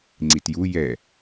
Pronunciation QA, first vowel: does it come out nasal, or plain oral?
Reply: oral